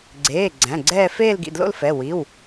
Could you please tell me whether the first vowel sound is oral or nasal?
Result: oral